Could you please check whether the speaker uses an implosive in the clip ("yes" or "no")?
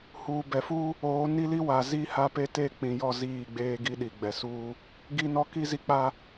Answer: yes